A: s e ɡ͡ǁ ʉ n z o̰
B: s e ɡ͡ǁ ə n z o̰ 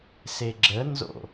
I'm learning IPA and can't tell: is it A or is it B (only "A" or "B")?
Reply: B